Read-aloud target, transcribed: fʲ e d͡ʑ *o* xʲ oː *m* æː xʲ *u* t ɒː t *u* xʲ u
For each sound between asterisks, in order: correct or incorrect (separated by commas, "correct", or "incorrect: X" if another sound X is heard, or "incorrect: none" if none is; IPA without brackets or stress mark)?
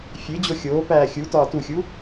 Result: correct, incorrect: p, correct, correct